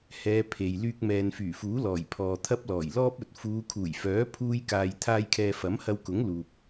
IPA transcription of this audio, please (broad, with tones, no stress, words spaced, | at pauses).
hɛː˨˧ pʰe˨j lyː˧k̚mɛː˨nfyː˨˩fuː˨˥ lɔː˨˩jpʰɔː˨t̪ʰɐ˥p̚ lɔː˨˩jlɔː˥p̚ɵ˨t̚ fuː˨˧kʰuː˨˩jfœː˨˥ pʰuː˥jkaː˧j t̪ʰaː˧jkʰɛː˨ fɐ˨˥mhɐ˧wkʊ˨˥ŋ luː˨p̚